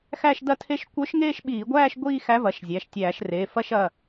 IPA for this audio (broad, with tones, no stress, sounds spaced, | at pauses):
x æ˥˧ ʃ d ɐ˥˧ tʰ e˥˧ ʃ kʷ œ˧˥ ʃ ŋ eː˥˧ ʃ ɓ iː˧˩˧ ɡʷ æː˥˧ ʃ ɡʷ iː˥˧ x æ˧˥ v ɐ˩˧˩ ʃ zʲ æ˩˧˩ ʃ tʲ æː˧˩˧ ʃ r eː˩˧˩ f ɐ˥˧ ʃ ɐ˩˧˩